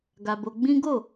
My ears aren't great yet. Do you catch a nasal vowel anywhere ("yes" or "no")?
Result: yes